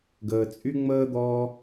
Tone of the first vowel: low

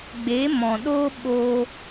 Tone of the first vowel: rising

